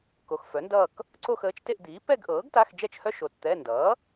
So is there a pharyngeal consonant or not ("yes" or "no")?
no